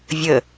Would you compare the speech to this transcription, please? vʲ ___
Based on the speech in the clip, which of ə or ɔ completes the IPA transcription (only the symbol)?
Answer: ə